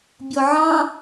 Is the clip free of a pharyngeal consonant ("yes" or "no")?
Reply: no